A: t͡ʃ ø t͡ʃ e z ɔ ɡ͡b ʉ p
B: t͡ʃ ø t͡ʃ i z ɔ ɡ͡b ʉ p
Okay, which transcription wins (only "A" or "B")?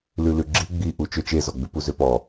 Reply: A